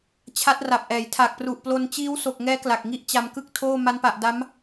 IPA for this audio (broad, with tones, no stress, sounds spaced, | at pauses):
t͡ɕʰ a˦˥ t̚ r a˨˩ p̚ ʔ ɛː˩˦ j tʰ a˨˩ k̚ p r u˨˩ ʔ p l o˧ n t͡ɕ iː˦˥ w s o˨˩ k̚ ŋ ɛː˦˥ k l a˨˩ k̚ ŋ i˥˩ ʔ t͡ɕ a˧ m k ɯ˥˩ k̚ tʰ oː˥˩ m a˦˥ n p a˨˩ ʔ d a˦˥ m